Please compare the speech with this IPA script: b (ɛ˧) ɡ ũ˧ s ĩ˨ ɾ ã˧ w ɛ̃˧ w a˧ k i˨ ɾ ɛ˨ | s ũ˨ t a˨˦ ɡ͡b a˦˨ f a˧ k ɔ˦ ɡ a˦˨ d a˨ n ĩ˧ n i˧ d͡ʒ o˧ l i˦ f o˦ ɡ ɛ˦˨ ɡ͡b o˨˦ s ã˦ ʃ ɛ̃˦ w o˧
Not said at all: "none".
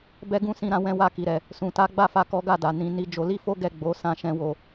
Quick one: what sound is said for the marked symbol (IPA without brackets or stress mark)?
ɛ˧